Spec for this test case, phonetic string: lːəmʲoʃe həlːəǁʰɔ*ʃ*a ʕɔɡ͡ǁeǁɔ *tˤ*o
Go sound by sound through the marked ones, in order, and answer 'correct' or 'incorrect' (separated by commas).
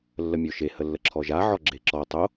incorrect, correct